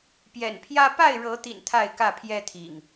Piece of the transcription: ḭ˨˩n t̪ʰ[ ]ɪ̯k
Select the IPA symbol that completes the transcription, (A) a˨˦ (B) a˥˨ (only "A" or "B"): B